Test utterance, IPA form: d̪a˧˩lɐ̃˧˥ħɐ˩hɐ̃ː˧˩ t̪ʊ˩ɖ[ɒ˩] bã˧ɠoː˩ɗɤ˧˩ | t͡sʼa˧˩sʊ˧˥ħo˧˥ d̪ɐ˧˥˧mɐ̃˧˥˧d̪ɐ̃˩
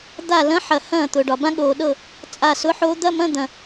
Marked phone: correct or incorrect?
correct